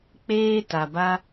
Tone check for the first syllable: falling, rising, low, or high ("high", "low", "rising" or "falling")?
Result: high